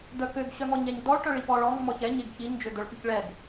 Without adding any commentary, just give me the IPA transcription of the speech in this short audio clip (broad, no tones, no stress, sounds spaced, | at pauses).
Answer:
d̪ œ k ø ɡ ɕ œ ŋ ɔ ɲ ɛ ɲ d ɔ ɭ ʈ œ ɭ i p ɔ ɭ ɔ ŋ m ɔ ç ɛ ɲ e ɡ ç i ɲ d͡ʒ ø d̪ œ ɭ p y ç ɭ ɛ ɡ